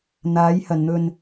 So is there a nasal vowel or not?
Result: no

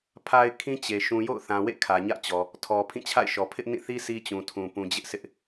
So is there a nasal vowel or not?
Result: yes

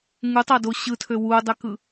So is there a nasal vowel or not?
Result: no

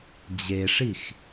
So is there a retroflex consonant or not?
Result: yes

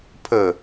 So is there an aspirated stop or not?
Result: yes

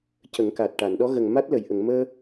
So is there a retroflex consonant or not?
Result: yes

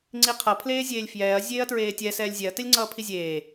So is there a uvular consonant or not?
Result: yes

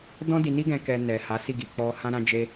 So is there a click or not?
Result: no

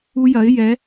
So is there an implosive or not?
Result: no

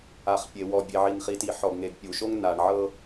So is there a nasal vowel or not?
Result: no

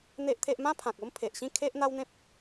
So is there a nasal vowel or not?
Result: yes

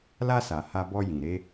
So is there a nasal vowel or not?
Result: yes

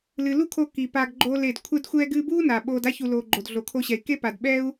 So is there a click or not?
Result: yes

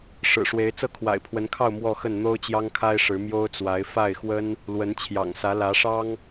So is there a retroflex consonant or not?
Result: yes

